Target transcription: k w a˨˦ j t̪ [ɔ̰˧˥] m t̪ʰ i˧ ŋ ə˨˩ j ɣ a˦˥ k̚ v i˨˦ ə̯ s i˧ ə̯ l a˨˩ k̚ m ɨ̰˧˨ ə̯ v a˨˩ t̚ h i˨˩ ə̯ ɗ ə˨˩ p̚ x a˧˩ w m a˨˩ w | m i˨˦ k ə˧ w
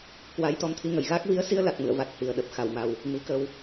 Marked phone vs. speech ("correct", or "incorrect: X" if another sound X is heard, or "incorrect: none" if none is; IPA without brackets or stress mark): incorrect: ɔ˧